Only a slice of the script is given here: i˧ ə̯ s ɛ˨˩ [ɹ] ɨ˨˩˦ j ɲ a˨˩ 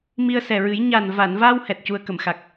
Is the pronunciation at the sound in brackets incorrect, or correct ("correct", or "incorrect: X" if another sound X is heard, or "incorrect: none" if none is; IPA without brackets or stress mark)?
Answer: correct